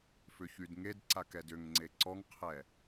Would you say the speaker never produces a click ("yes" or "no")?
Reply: no